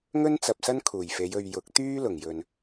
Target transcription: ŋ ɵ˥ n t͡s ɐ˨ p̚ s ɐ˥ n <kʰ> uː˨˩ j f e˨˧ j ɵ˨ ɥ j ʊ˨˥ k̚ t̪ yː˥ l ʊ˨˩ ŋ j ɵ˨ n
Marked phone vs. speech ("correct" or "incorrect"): correct